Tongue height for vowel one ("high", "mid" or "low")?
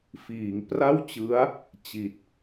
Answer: high